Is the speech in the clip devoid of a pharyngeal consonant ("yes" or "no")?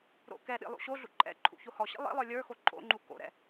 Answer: yes